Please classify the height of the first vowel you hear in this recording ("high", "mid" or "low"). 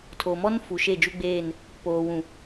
mid